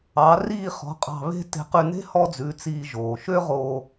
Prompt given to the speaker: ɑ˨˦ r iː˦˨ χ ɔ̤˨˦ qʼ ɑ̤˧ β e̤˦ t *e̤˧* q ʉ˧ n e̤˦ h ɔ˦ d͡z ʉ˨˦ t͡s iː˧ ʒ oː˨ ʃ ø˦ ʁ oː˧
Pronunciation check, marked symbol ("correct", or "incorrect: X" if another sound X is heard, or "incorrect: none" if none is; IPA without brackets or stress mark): correct